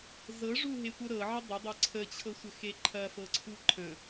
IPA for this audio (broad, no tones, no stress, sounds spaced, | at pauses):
z ɤ ʐ u ɦ e tʷ ɤ ɾ ɤ ʕ ə dˤ ə dˤ ɐ ǀʰ ə t͡ɕʰ ɤ sʷ ə x e ǃʰ ɐ f ɤ ǀʰ u ǃʰ ə̃